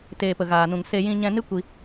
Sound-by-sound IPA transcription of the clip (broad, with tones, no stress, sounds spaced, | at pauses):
t eː˨ p ə˨ ɣ aː˨ n ũ˨ ŋ s e˧ j ĩ˧ ɲ ɛ̃˧ n ɨ˦ kʷ i˧